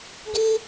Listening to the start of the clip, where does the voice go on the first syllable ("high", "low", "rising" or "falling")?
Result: high